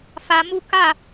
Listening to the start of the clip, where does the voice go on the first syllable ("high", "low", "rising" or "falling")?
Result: rising